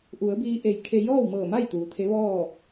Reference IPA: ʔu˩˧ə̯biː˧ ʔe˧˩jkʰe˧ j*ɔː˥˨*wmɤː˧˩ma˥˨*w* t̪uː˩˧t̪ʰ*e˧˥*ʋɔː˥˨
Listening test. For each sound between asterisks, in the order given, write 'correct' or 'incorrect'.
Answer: correct, incorrect: j, correct

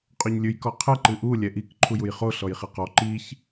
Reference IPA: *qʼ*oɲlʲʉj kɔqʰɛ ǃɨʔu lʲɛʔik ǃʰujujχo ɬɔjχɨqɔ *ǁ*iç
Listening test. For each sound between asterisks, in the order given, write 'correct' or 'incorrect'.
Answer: correct, incorrect: ǃ

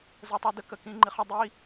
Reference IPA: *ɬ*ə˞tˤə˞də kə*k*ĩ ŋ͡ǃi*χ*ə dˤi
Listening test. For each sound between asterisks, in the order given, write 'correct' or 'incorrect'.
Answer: incorrect: z, correct, correct

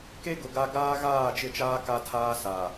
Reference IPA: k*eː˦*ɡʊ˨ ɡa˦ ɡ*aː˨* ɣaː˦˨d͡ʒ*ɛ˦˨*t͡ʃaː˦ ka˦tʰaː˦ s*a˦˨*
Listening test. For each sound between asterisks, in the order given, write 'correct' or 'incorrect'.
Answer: incorrect: e˦, incorrect: aː˦, incorrect: ɪ˦˨, incorrect: a˨

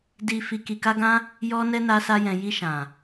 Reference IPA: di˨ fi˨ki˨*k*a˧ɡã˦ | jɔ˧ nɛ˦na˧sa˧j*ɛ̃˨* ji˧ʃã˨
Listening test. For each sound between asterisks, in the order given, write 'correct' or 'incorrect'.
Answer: correct, correct

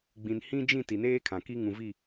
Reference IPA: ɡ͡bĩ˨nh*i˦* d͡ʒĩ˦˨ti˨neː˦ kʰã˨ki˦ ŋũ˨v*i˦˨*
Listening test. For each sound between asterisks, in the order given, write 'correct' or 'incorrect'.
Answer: incorrect: ĩ˦, correct

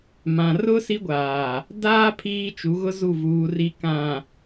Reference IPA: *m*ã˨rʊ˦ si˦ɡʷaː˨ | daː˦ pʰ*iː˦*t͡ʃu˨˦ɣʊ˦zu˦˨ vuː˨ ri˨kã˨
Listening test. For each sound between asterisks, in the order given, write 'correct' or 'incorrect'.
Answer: correct, correct

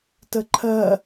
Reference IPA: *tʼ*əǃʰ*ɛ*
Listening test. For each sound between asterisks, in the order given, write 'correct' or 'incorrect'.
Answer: incorrect: t, incorrect: ɜ

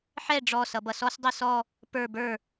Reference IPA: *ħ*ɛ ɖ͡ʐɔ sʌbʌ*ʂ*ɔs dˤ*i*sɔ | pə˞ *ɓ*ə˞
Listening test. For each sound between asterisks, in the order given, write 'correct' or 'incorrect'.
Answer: correct, incorrect: s, correct, incorrect: b

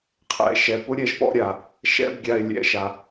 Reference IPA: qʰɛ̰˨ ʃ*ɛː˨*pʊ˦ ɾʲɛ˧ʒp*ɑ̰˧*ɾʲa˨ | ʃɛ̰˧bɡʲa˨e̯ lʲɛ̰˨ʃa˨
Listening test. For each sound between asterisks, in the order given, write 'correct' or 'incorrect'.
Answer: incorrect: ɛ˨, incorrect: ɔ̰˧

